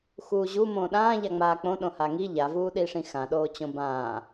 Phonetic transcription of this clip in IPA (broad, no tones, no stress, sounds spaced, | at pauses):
x uː ʑ u m õː ɗ ãː ʎ a ŋ͡m aː k͡p õ ɗ õ h a ŋ i ʎ a v uː ɗ iː ʂ ĩ x ã ɗ oː t͡ɕ õ b ãː